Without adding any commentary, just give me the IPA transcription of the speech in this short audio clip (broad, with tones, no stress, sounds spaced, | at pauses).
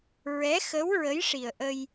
ɹ ɛ˧˥ x ə˧˥ w ɹ ə˧˥ j ʂ i˨˩ ə̯ ʔ ə˧ j